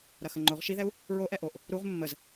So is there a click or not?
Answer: yes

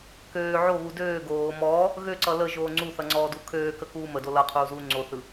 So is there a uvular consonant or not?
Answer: yes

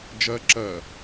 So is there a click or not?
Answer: yes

